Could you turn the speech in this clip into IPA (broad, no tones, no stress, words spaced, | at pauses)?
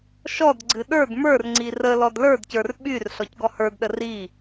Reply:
ʃɔdɡ͡ǀɨ ɗə˞d mə˞rŋ͡ǀi rə lɔdlə˞dcə˞r ɓyr ɬɔcɡɔhə˞dɗə ri